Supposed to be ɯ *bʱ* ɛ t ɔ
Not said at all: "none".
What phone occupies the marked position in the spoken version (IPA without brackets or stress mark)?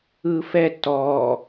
f